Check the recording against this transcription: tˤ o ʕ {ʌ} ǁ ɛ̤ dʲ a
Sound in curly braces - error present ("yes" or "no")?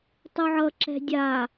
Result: no